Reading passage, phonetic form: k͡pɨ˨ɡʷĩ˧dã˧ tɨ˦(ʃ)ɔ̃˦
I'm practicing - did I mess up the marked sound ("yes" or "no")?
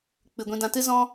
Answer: yes